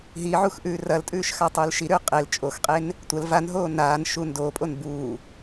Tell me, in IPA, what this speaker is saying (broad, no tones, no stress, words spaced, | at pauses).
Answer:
ɦiʕux ʔʉːrɐltʼʉːʃ xatˤʉːlʃiɾʉː qʼel t͡ʃʼoxqʼen | tʷɐl vanɦoː naːn ʃuːndoːpʼon buː